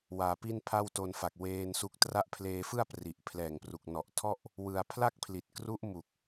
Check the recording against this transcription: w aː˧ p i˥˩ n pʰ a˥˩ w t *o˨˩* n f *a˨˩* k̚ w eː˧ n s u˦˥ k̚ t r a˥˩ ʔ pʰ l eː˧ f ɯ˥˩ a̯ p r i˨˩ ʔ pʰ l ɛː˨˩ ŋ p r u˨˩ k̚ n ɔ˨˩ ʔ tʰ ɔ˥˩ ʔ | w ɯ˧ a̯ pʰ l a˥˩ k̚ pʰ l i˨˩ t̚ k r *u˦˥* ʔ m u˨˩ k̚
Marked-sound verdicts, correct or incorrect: incorrect: o˧, correct, correct

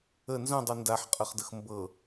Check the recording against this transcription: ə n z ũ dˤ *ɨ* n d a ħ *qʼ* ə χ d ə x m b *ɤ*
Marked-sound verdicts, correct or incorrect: incorrect: y, correct, correct

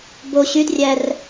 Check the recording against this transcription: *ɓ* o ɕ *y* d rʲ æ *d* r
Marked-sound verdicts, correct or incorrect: incorrect: b, correct, incorrect: none

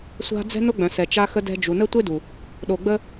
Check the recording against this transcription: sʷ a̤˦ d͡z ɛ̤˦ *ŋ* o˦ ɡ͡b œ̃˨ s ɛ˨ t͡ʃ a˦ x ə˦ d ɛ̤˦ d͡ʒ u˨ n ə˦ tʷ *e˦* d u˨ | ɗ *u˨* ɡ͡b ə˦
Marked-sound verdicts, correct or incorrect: incorrect: n, correct, incorrect: o˨

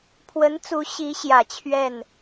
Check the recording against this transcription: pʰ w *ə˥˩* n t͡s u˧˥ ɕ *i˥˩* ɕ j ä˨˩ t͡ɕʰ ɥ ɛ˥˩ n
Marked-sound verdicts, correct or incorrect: incorrect: ə˧˥, incorrect: i˧˥

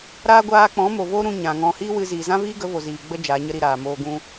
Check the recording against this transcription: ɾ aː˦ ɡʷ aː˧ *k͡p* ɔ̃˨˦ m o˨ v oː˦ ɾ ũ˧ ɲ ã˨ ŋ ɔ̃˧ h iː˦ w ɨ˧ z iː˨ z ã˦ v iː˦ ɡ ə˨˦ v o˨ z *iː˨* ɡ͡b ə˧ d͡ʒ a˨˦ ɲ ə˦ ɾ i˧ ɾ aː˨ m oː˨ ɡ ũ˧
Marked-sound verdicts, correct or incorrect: correct, correct

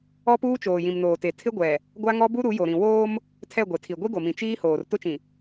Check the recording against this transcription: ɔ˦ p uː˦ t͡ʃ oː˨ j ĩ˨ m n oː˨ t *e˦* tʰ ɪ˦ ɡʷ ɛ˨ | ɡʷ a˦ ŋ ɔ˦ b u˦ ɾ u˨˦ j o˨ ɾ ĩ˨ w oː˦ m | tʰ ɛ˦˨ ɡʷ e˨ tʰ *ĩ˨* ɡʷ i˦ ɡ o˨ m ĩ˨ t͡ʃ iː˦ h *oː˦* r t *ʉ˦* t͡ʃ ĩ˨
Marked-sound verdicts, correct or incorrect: incorrect: e˨, incorrect: i˨, incorrect: oː˨, incorrect: ʊ˦

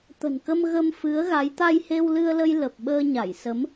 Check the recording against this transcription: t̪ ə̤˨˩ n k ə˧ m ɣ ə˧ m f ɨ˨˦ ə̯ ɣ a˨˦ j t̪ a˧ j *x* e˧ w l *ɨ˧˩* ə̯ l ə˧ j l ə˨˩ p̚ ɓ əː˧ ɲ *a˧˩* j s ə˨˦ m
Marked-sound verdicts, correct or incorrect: incorrect: h, incorrect: ɨ˧, correct

